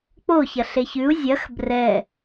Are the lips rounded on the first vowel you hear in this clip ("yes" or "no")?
yes